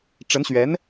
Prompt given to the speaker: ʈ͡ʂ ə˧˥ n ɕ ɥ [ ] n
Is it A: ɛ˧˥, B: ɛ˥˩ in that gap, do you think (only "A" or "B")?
A